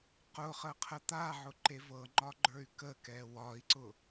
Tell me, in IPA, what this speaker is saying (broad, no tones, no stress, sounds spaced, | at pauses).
q ʊ χ ə qʰ ə t̪ a ʕ ʊ ǃ e v ɤ ŋ͡ǃ ɒ ɡ͡ǃ ə˞ y̯ k ə k ɛ w ɒ i̯ ǀ ʊ